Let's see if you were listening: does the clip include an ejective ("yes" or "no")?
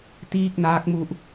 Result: no